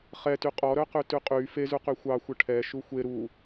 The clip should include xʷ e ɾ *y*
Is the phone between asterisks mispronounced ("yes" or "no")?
yes